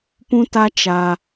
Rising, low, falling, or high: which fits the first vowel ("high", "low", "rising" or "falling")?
high